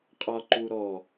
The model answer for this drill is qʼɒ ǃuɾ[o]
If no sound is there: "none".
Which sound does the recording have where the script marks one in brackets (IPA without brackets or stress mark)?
ɔ